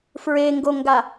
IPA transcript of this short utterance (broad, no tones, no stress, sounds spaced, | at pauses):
f ɹ e ŋ ɡ o ŋ ɡ a